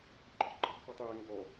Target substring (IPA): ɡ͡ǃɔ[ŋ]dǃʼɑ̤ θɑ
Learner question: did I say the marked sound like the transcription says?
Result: no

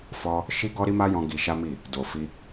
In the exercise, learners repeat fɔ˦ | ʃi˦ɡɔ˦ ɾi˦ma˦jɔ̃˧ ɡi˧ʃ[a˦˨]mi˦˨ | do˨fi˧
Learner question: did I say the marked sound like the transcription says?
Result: no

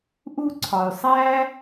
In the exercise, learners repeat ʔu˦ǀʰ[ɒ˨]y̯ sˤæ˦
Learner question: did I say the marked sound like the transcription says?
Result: yes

